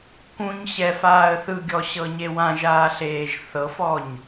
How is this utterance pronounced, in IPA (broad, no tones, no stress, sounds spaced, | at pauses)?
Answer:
k ũ ɲ ɕ ɛ f aː ə̯ θ ɯ ɡʲ ɔ ɕ ɤ ɲ e w ã ʒ aː ɬ eː ʒ θ ɤ f ɔ ɲ